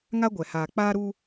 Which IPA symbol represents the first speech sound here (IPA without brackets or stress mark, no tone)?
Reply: ŋ